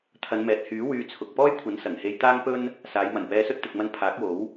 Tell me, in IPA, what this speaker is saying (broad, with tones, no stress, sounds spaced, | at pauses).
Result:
t̪ʰ ɐ˨˧ n m ɛː˨ t̚ h yː˨˥ w yː˧ t͡sʰ ʊ˨ k̚ p ɔː˥ j kʷʰ ɐ˨˥ n s ɐ˨˩ ŋ h e˧ j t̪ aː˥ ŋ p ɵ˥ n | s aː˨˧ j m ɐ˨˩ n p ɛː˧ s ɵ˥ t̚ t̪ ɪ˨ k̚ m ɐ˧ n pʰ aː˨˥ k̚ w o˨˥ w